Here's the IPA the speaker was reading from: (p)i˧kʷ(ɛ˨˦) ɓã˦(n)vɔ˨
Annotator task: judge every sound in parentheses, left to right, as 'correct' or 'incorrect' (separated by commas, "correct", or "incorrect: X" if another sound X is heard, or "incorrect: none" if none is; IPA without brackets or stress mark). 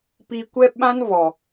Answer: correct, incorrect: ɛ˦, correct